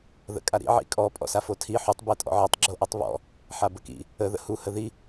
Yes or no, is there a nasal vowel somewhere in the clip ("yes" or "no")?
no